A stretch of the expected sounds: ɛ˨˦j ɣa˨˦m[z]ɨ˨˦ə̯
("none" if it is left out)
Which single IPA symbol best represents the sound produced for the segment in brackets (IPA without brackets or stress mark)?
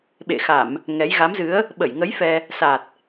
z